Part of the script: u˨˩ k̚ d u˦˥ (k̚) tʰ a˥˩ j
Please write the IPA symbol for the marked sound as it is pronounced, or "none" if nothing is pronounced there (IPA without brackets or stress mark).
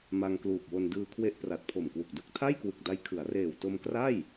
k̚